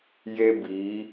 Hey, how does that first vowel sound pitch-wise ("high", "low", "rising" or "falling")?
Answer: high